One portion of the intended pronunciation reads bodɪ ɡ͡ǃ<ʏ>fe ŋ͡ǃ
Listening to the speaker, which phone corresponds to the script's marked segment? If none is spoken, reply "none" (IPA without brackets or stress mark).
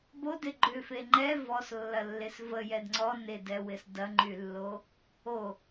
ʏ